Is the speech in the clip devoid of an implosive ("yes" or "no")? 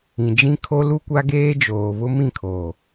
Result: yes